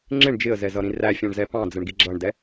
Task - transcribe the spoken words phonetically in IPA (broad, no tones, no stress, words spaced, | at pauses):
ŋ͡ǁɪɳ d͡ʒɪə̯zɛzʌɾĩ ræfʲɑ̃ɳzɛ pɑ̃d͡zəɳɡi ɡ͡ǁʌɳdɛ